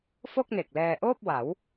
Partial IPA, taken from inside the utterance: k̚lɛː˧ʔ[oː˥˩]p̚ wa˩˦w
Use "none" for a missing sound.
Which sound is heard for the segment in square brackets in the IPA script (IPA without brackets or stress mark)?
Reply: oː˥˩